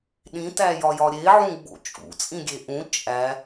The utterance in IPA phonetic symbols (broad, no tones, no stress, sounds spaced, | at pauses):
ɗ ĩ t æ j ɒ j ɒ ɾʲ e ʕ ũ ɡ͡b o̰ t͡ʃʼ ṵ t͡sʼ ĩ ɡʲ e ʔ ũ t͡ʃʼ æ